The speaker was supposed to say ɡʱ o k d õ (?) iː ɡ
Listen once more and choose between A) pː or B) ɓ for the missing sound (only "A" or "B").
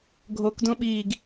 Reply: B